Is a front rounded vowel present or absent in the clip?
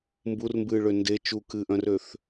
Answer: present